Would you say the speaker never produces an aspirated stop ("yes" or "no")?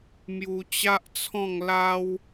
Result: no